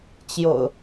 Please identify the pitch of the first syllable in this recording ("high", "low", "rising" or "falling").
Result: low